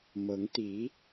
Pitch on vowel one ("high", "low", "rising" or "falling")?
rising